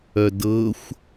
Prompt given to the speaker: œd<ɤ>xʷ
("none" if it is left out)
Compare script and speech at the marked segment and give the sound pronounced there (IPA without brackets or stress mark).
ɤ